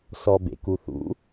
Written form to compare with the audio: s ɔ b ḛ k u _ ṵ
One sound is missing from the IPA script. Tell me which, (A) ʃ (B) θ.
B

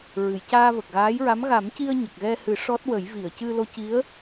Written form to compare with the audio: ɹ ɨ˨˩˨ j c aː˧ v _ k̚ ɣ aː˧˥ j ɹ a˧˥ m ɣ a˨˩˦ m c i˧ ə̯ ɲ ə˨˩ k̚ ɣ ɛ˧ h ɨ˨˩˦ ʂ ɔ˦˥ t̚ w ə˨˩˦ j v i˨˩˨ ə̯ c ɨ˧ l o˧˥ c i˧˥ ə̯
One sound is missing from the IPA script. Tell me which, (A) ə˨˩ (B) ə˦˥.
A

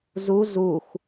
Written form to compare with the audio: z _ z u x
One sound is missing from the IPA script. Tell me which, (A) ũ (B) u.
B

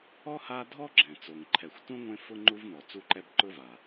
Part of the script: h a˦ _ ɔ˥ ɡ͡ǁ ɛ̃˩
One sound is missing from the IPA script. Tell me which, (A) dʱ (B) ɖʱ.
A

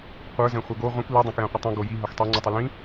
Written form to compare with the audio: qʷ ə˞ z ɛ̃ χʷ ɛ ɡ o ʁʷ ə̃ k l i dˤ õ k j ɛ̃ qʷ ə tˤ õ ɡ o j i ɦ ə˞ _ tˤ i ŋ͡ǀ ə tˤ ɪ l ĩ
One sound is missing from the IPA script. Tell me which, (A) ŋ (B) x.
B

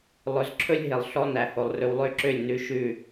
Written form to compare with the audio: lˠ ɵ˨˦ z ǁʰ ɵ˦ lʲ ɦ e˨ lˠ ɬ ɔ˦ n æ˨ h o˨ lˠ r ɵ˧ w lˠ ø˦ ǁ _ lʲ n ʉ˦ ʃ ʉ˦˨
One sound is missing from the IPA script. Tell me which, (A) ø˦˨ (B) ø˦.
A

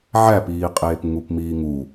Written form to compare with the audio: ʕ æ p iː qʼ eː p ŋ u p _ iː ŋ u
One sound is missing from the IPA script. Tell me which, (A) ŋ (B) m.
B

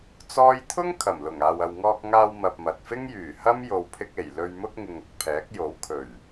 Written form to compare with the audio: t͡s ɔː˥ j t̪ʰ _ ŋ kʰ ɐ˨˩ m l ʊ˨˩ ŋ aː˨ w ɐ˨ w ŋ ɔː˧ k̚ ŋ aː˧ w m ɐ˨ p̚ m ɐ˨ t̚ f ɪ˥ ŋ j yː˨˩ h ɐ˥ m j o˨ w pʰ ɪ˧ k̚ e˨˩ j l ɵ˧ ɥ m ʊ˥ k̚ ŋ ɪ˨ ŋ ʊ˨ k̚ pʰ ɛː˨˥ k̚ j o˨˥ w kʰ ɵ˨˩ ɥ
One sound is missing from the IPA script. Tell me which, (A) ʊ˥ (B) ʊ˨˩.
A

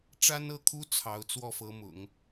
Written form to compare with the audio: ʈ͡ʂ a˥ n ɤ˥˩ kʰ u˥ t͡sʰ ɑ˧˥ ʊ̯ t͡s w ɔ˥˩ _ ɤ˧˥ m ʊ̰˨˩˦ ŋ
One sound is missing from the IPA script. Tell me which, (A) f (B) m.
A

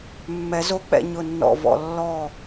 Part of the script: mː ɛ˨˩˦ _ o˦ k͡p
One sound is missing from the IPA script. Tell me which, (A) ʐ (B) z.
B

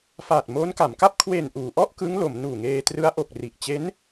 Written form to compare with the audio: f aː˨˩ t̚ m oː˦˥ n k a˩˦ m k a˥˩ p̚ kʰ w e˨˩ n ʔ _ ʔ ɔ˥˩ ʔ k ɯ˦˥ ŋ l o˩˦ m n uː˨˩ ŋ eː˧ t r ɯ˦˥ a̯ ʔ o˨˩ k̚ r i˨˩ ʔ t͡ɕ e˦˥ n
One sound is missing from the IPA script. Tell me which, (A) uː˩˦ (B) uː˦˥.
A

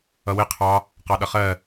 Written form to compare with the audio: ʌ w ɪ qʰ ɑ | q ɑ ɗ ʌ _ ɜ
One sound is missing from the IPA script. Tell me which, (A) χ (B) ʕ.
A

